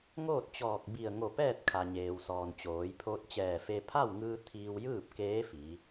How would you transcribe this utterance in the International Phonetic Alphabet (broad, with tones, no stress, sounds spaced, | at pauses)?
ŋ oː˥˨ t̚ t͡ɕ ɔː˧˩ k̚ b i˧˩ ə̯ ŋ o˧˩ p ɛː˥˨ t̚ kʰ a˩ ɲ eː˩ w s ɔː˩ n t͡ɕ oː˩˧ j pʰ oː˧ t̚ t͡ɕ ɛː˧˩ f e˧ pʰ a˥˨ w ŋ ɯː˧ t̪ʰ iː˧ w j ɯː˥˨ p̚ k eː˧˥ f i˩˧